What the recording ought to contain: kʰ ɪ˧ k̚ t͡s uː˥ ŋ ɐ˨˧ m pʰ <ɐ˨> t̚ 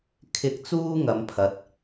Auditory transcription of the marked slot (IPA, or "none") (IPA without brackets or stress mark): ɐ˨˥